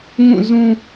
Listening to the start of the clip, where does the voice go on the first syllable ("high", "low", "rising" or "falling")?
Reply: falling